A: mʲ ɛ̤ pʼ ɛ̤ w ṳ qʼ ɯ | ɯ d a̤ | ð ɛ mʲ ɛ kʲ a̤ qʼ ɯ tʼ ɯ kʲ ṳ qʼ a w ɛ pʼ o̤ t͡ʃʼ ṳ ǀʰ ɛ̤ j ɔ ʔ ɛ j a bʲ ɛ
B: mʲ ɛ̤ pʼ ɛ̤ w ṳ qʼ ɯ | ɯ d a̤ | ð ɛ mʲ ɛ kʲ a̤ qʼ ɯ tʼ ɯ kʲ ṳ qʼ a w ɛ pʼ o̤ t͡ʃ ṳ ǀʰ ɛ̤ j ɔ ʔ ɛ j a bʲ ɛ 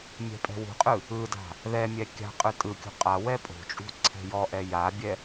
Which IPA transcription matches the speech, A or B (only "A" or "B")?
A